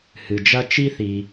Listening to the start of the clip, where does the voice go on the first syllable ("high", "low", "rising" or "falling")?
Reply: low